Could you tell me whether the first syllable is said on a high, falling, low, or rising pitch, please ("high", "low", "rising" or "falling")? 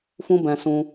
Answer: high